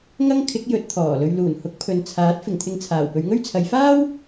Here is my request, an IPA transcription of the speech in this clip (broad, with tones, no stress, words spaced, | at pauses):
ŋɐ˥ŋkʰɪ˨˥k̚jɵ˨˥t̚ t̪ʰɔː˨˩lɵ˧ɥ luː˨˩n hʊ˨˥k̚pʰɵ˨nt͡sʰaː˨˥t̚ fɪ˨˩ŋt̪ʰɪ˧ŋt͡sʰaː˨˩w pɵ˨˧ɥŋɵ˥ɥt͡sʰɐ˨˧j faː˥w